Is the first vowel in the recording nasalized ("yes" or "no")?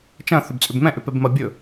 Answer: yes